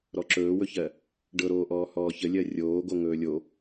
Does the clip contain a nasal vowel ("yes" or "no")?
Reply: no